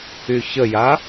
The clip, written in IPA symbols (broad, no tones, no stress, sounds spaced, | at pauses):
y ç ə j a